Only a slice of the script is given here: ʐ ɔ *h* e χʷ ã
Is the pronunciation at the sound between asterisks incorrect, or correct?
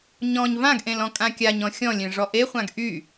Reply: incorrect